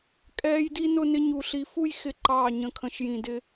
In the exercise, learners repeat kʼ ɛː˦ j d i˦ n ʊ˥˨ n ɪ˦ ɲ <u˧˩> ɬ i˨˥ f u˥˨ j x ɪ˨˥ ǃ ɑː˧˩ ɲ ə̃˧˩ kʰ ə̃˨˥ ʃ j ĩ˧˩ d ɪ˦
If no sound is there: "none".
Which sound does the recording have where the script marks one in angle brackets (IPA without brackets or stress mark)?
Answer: u˧˩